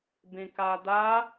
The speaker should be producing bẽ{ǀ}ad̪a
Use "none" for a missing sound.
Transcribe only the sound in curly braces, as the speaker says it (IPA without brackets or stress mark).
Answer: k